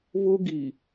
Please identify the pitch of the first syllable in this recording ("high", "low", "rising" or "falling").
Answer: high